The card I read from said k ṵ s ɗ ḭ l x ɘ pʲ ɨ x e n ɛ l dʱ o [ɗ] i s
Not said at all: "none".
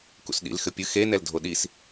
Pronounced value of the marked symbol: ɗ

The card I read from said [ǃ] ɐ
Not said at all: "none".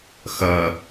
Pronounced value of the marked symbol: x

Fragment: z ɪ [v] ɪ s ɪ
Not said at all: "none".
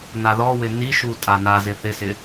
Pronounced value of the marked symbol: θ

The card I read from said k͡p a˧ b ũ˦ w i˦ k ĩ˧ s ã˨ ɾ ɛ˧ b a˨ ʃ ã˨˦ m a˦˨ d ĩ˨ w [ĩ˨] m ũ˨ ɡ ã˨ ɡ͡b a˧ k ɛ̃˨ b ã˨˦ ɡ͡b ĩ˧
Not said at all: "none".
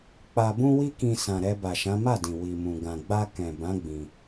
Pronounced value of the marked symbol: i˨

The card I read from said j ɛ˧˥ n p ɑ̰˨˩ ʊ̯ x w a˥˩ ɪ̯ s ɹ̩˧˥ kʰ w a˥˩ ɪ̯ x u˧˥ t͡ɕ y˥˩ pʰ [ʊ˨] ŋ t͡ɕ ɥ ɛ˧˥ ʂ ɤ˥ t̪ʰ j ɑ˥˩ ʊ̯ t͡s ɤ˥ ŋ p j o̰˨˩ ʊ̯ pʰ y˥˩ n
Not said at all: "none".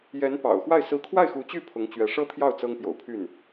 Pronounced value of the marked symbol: ʊ˧˥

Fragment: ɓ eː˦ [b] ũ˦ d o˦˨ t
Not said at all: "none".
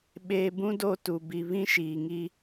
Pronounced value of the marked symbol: b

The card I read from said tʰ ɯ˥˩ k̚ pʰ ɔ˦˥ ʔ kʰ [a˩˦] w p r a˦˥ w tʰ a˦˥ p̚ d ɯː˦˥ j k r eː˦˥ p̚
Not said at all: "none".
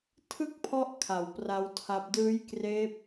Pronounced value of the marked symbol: a˩˦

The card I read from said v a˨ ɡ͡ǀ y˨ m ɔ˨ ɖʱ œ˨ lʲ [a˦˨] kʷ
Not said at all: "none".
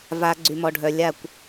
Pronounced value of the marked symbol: a˦˨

